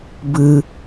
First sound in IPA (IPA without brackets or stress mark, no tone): b